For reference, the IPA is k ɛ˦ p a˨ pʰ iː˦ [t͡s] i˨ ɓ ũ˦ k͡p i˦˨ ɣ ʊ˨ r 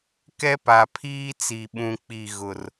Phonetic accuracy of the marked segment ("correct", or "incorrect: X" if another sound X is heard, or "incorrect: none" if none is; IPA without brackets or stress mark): correct